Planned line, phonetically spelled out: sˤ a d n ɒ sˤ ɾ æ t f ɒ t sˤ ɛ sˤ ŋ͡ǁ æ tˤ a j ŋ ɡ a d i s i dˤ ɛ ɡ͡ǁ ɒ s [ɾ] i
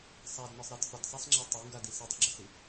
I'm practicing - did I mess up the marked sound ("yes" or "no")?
no